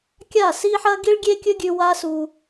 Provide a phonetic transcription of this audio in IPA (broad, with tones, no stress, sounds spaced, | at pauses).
kʲ a˦˨ s i˦ ħ ɐ˦ ɡ i˦ ɭ ɡʲ e˦ kʲ ɵ˦ ɡʲ ʉ˧ w a˦ s u˧